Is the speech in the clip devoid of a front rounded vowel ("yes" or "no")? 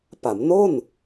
yes